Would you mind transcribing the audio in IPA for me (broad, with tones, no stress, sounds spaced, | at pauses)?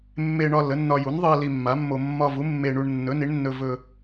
mː e˧ ɳ ɒ˧ l ə˩˥ nː ɒ˧ j u˩˥ n ðˤ ɨ˧ ɐ̯ l i˧ mː a˩˥ mː o˧ mː ɒ˧ v u˩˥ mː e˧ ɳ u˧ ɳ nː ɵ˩˥ n i˩˥ ɳ nː ɵ˧ v ɵ˧